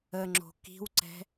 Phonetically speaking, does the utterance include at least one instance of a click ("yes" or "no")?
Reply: yes